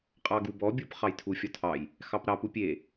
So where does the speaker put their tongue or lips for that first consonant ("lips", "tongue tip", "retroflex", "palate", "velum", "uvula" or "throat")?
uvula